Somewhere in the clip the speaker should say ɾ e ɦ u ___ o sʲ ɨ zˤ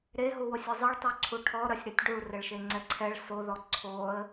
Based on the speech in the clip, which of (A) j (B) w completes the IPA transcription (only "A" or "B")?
B